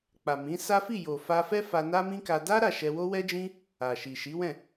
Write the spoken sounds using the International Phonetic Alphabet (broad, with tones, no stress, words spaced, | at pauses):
k͡pa˨mĩ˨˦sa˦ fi˦˨jo˨fa˧fɛ˦ fa˧na˦mĩ˦ka˧ da˦ ɾa˦˨ʃɛ˧ wo˦wɛ˦d͡ʒĩ˦ | a˨ ʃi˨ʃi˨˦wɛ̃˦˨